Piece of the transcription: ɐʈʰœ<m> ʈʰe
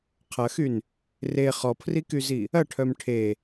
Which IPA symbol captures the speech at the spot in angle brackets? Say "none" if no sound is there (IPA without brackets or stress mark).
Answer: m